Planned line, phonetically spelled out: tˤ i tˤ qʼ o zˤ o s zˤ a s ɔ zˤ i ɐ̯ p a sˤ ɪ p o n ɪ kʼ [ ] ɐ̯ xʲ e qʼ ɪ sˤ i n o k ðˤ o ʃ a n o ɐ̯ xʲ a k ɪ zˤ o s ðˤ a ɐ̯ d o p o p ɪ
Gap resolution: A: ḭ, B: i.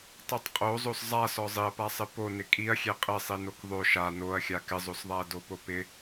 B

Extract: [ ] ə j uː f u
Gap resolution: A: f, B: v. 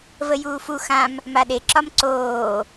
B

